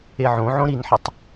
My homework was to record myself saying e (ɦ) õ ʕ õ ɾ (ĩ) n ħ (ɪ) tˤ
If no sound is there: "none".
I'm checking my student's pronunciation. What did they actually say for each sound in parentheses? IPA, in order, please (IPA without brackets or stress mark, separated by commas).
ʕ, i, ɪ